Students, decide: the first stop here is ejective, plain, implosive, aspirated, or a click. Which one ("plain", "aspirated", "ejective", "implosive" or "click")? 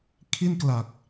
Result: aspirated